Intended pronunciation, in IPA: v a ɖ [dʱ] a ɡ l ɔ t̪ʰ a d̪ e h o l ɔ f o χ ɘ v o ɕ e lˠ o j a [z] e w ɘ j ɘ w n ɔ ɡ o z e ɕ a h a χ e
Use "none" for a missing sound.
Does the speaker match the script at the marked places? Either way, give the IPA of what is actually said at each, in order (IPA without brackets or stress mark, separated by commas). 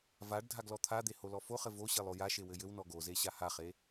dʱ, ʃ